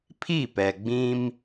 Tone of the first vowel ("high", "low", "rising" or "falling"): falling